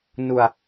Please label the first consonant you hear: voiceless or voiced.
voiced